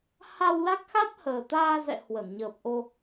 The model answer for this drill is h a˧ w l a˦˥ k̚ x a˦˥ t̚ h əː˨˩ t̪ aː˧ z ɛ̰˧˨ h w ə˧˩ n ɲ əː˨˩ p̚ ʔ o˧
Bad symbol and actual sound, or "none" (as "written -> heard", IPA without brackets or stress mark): none